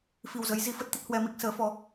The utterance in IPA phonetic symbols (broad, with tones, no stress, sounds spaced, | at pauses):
f i˨˩ w z ə˨˦ j z i˨˦ f ə˦˥ t̚ t̪ ə˦˥ t̚ h w ɛ˧ m i˦˥ k̚ s əː˨˦ f ɔ˧